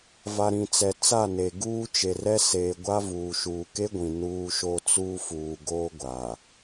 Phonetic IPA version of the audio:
v a˨ ɾ ĩ˨ t͡s ɛ˨ t͡s a˦˨ n e˨ ɡ uː˦ t͡ʃ e˨ r ɛ˦ s eː˨ ɡʷ a˦ v uː˨ ʃ uː˨ k e˦ ɡʷ ĩ˨ n uː˦ ʃ o˦ t͡s uː˦ f uː˨ ɡ oː˦ ɡʷ a˨

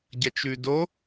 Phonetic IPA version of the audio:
ɟ ɐ t͡ʃ ʉ d o

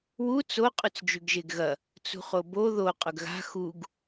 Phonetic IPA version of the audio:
w u t͡s o qʼ ʉ t͡s d͡ʒ ʉ ɡ ʒ e ɡ ɣ ɐ | t͡s ṳ χ o b o ð o qʼ ɵ ɡ ɣ a̤ x u ɡ

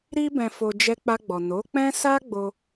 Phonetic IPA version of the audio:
ɾ i˧ b ɛ̃˨ f o˨ d͡ʒ ɛ˧ k͡p a˧ ɡ͡b ɔ˨ n o˨˦ k͡p ɛ̃˦ s a˦ ɡ͡b o˧

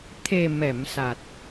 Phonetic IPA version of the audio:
t̪ʰ e˨˩ m ɛ˨˩˨ m s a˨˩ t̚

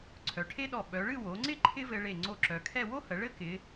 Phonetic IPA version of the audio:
ǀʰ œ˩˧ ʈʰ e˥ ɗ ɔ˧˩ ɓ œ˩˧ ɭ ɨ˥˧ w o˩˧ ŋ͡ǀ ɪ˥˧ ǃʰ ɪ˥ v ɘ˧ ɭ e˧˩ ŋ͡ǀ o˧˩ ǁ œ˩˧ kʰ ɛ˥˧ w o˥ h ə˩˧ ɭ ɘ˥ k ɪ˩˧

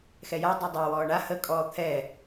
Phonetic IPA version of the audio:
x ɛ j a dˤ ɛ dˤ əː w ɔː ɳ a h ə kʼ ɔː t̪ʰ ɛ

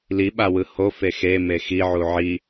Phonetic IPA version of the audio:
l i ɓ a w ɯ h o f e x e m e x i ʕ u ʕ i

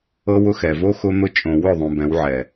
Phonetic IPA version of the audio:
ɤ˦ w ʊ˦ x ɛ˨ v o˦ x ʊ˦ n̪ ʊ˦ t͡ʃʼ õ˨ w ʊ˦˨ ðˤ ũ˨ b ɛ̃˨˦ w ʕ ɛ˨

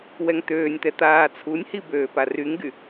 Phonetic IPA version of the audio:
w ɛ ŋ t̪ øː nʲ t̪ ɛ t̪ aː t͡sʰ u nʲ h i b øː p a r y ŋ ɡ y

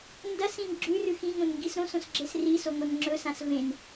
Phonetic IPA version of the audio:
n d ɐ s ĩ n ɡ͡ǁ ʉ r ʉ x ĩ ŋ õ n ŋ ɡ i s ɾ õ s õ s ɡ͡ǁ e s r i s o ŋʷ ɐ n ŋ͡ǁ ɵ s ã s v ẽ n

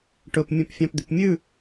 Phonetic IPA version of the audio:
ʈ ɵ p mʲ œ̃ p fʲ ɑ̃ p d̪ y p mʲ ʉ

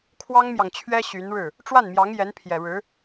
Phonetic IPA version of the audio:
kʰ w ɑ˥ ŋ m j ɑ˨ ŋ t͡ɕʰ ɥ ɛ˥ ɕ y˧˥ n ɻ ɻ̩˥˩ | ʈ͡ʂ w a˥˩ n m j ɑ˧˥ ŋ j ɛ˧˥ n pʰ j ɛ˨˩ ɻ ɻ̩˧˥

